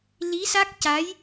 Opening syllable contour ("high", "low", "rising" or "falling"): rising